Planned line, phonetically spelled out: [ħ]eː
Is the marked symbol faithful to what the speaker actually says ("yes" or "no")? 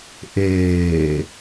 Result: no